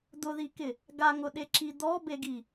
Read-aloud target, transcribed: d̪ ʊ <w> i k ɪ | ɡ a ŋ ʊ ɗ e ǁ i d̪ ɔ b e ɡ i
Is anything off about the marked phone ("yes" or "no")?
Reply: yes